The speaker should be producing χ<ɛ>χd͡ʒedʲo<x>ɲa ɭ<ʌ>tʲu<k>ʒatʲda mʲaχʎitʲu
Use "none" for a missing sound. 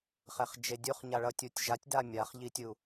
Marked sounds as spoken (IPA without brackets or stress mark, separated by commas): ɛ, χ, ʌ, tʲ